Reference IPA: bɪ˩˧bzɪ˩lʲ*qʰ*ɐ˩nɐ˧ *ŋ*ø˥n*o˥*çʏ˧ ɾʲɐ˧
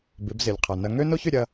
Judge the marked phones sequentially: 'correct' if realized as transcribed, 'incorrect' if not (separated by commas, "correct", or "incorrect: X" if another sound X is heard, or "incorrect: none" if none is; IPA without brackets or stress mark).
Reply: correct, correct, correct